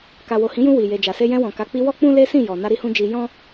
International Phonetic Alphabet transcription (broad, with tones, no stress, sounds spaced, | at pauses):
k a˨ w o˨ h ĩ˨˦ j ũ˧ w i˨ j e˨ d͡ʒ a˨ s e˧ j ɛ̃˧ w ɔ̃˨ k a˨˦ k͡p i˧ w ɔ˦ k͡p ũ˦ l e˦ s ĩ˦˨ j ɔ˨ n a˧ ɾ i˧ h ũ˧ d͡ʒ i˧ j ɔ̃˦